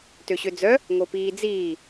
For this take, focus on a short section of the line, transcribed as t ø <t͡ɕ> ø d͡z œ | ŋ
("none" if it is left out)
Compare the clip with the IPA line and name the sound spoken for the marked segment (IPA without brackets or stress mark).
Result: ɕ